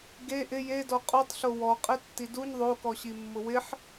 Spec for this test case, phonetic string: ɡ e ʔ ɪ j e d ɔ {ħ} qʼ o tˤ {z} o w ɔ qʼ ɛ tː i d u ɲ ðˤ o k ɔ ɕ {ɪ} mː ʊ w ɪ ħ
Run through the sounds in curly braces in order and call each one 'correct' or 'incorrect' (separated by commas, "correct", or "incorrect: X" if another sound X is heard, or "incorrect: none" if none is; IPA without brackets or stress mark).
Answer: incorrect: none, incorrect: ɬ, incorrect: i